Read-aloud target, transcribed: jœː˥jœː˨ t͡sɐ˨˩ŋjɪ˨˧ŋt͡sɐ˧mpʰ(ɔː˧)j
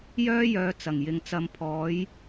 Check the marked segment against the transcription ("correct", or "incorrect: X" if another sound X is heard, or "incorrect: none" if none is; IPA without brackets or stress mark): incorrect: ɔː˨˥